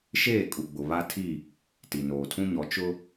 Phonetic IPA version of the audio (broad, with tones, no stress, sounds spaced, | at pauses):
ʃ eː˦˨ kʼ u˨ ɡ͡b ʊ˨ β a˦ tʰ i˦˨ | t i˨ n oː˨ tʰ ũ˦ ɲ ɔ˨˦ t͡ʃ ʊ˦